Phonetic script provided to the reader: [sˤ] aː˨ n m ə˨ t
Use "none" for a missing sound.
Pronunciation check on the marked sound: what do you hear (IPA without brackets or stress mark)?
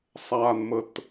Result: sˤ